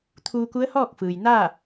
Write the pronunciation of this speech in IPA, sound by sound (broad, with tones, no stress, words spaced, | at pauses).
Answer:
t̪ʰuː˧ku˧˥ə̯hɔː˥˨k̚fɯː˩j naː˥˨